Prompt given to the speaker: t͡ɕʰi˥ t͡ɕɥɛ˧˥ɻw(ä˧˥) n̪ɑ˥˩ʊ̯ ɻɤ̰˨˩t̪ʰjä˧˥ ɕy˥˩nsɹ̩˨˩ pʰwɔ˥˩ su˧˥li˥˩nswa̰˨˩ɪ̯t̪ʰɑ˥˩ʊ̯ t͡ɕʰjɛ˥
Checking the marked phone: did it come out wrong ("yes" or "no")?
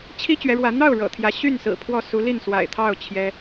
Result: no